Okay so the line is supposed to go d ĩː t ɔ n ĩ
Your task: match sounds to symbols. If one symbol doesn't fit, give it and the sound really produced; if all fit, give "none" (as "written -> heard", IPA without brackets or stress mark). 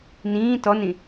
d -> n